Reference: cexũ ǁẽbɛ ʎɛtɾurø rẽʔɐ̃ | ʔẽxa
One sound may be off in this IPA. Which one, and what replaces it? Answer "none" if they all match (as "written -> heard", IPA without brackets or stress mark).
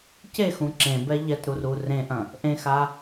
ø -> u